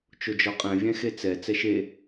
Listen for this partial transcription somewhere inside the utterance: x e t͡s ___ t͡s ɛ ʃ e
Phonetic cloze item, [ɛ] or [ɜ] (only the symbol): ɛ